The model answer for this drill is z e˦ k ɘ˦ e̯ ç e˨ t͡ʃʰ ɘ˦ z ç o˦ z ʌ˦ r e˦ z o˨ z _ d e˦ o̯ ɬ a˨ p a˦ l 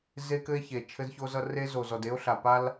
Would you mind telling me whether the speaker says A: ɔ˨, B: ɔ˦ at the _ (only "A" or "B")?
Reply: A